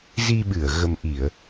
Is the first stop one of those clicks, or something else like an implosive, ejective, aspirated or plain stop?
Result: implosive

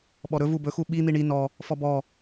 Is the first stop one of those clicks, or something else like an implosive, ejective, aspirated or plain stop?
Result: implosive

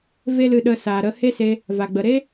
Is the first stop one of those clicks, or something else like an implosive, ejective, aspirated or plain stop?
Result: implosive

